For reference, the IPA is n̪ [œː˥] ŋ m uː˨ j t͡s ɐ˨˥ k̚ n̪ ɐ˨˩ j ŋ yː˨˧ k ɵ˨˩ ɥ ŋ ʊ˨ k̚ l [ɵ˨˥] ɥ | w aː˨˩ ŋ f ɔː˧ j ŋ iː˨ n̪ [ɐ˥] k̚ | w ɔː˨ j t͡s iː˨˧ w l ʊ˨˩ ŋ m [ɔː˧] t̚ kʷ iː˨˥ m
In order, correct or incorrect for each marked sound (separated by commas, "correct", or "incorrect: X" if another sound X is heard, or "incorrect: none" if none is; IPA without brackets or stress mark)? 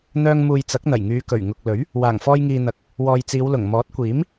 incorrect: œː˧, correct, incorrect: ɐ˨˥, incorrect: ɔː˨˥